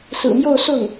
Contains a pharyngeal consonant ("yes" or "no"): no